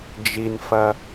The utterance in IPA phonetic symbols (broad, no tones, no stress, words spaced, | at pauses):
d͡ʒinfɐ